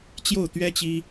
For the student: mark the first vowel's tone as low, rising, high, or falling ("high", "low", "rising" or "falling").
falling